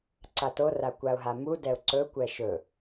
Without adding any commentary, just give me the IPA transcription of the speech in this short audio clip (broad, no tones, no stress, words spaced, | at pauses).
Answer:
ǀatora kʷaʊ̯ɦamudɛʊ̯ ǀɵkʷɛ ʃɵ